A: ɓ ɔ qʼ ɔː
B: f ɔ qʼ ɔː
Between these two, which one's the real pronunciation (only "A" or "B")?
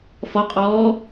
B